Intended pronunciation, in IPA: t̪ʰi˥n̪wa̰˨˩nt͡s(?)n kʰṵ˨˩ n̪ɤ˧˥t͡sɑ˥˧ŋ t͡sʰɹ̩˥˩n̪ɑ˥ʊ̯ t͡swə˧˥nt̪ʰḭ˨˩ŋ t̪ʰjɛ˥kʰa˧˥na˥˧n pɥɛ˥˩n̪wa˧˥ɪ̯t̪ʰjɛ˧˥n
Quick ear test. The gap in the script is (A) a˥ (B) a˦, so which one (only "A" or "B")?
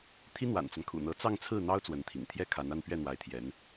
B